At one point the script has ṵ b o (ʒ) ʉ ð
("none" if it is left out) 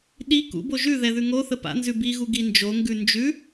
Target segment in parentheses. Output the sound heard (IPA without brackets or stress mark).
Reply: ʒ